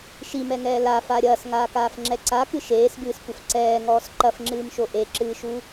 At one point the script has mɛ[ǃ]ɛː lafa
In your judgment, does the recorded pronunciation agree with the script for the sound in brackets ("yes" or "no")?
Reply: no